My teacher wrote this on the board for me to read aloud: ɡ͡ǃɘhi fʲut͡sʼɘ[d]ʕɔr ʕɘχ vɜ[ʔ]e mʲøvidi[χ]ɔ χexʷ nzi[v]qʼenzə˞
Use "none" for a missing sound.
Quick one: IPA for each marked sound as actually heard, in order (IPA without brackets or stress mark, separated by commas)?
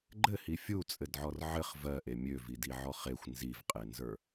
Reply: d, ʔ, ʕ, v